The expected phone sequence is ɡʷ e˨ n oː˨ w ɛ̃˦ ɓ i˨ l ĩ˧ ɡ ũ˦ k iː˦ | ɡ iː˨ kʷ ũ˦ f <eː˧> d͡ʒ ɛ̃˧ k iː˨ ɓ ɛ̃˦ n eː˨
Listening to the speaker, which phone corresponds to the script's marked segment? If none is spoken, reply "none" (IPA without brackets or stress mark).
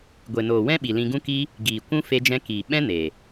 e˧